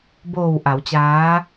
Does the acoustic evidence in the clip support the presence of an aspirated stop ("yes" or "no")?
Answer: no